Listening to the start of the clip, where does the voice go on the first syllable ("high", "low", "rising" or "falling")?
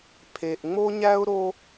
low